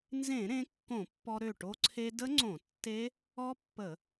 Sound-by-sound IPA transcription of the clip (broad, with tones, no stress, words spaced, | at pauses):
nzẽ˧˩˧ɾẽ˩˧ kːõ˧˩˧ pːɔ˧ɾø˧˩ ʈo˧ǀʰe˧də˦˥ ŋ͡ǀõ˧˩˧ tːe˦˥ | ɔ˦˥pːə˧˩˧